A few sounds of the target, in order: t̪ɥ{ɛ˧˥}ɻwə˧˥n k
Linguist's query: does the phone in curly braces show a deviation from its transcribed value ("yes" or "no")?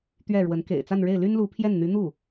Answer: yes